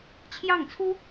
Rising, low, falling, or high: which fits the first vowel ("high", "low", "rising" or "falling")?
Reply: falling